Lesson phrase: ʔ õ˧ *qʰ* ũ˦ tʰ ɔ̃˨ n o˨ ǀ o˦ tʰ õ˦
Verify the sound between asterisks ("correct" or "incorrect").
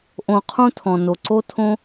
correct